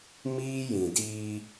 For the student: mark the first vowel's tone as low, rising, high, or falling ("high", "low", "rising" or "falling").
high